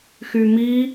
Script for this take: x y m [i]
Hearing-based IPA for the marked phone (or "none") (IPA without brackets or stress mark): i